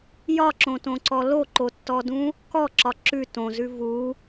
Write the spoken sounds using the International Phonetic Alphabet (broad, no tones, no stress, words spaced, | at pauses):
jɒǁõtõǀɔ loǃotːɔdũ | kɔǁɒ ǁʉ tõzʉ vu